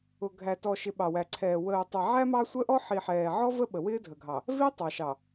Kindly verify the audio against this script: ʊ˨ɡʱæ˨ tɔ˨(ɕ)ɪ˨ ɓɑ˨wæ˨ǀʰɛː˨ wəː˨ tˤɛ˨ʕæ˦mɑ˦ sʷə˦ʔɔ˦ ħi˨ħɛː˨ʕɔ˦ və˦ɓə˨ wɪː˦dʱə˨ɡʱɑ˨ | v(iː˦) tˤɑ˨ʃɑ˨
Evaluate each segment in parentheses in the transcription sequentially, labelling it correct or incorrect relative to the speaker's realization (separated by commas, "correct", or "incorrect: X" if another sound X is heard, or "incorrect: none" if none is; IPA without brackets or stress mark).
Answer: incorrect: ʃ, incorrect: i˦